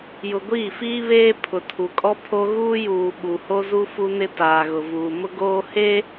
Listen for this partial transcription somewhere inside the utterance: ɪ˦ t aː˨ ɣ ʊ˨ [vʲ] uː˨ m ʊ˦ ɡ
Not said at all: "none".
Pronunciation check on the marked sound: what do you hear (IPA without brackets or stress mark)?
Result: v